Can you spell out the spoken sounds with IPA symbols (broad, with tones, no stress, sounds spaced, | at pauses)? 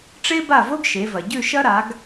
ʈ͡ʂ e˥ b a˥˩ v o˥ ɡ ʃ e˩˧ v ɐ˩ ɟ ʉ˥˩ ʃ ɐ˥ ɾ a˩˧ ɡ